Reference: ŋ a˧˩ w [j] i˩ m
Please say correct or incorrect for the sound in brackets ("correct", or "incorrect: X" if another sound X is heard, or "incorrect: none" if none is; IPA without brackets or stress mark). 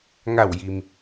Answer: correct